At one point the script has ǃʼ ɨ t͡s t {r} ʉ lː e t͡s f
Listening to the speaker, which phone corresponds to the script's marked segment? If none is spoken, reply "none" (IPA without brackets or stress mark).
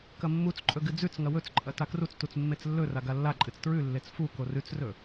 ɹ